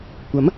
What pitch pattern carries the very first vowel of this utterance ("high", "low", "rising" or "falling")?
rising